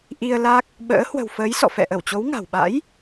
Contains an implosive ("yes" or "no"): yes